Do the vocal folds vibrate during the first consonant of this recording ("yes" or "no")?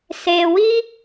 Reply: no